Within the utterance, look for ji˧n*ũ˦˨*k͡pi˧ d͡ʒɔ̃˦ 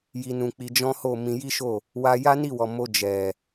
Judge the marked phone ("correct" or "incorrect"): incorrect